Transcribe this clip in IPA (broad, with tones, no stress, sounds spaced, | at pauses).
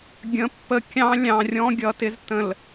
ɡʲ ə̃˨˦ pː ə˨ kʲ ɑ̃˦ lʲ ɑ̃˨ rʲ ɔ̃˦ ɡʲ ʌ˨ t ɪ˦ z t ə̃˨ l